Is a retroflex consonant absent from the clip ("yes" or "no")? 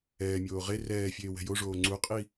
no